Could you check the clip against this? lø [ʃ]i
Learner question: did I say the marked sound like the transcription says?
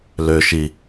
yes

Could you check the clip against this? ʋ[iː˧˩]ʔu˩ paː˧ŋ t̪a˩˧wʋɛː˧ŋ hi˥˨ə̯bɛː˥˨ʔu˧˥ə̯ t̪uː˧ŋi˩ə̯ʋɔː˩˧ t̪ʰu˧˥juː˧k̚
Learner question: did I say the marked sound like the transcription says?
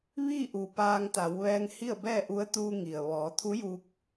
no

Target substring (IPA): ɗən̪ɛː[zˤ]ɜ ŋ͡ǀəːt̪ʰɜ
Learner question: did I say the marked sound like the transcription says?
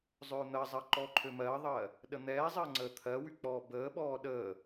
yes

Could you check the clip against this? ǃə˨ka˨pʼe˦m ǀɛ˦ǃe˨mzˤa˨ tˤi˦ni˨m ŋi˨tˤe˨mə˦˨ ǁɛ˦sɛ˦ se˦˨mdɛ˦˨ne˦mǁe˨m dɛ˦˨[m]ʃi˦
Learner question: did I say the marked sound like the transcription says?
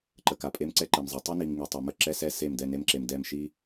yes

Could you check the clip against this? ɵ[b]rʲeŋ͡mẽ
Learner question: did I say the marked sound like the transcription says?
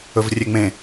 no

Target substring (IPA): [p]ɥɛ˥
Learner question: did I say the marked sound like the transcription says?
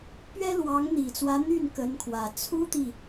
yes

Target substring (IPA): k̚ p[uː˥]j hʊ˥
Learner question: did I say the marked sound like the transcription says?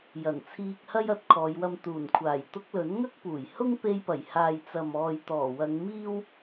no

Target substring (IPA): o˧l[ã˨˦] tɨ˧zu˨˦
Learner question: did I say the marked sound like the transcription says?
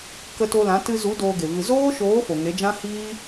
yes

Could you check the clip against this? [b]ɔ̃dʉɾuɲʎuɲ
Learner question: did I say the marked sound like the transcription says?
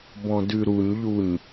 yes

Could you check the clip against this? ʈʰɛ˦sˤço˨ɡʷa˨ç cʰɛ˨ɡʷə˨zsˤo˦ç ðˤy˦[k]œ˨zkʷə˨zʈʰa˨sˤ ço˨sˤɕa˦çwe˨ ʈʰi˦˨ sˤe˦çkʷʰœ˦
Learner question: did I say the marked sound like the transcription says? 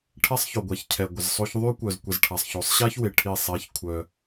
no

